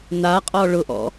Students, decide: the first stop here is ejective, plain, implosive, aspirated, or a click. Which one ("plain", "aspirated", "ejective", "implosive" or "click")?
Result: ejective